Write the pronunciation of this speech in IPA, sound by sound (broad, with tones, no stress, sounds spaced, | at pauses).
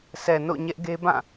sʰ ɛ˨ n o̰˦˨ ɲ ɛ˦ ʔ ɡ e˦ b ã˦˨